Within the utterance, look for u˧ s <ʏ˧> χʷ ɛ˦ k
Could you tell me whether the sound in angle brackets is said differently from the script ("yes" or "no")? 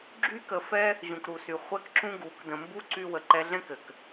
yes